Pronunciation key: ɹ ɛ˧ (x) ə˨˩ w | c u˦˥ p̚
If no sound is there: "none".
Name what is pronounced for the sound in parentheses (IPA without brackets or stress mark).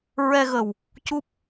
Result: ɣ